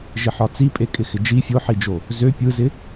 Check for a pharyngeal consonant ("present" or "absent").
present